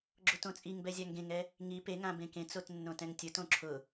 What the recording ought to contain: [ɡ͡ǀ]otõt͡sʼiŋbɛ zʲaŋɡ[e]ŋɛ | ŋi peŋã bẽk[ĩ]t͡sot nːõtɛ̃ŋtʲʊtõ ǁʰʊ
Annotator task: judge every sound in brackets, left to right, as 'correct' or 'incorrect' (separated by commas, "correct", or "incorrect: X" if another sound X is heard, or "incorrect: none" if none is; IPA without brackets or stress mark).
incorrect: ɡ͡ǁ, incorrect: ẽ, incorrect: ẽ